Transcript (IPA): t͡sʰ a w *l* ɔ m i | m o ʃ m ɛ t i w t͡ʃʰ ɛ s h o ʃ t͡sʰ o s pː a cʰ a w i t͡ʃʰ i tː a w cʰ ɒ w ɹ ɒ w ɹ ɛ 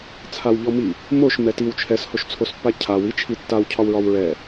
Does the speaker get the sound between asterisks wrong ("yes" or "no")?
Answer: yes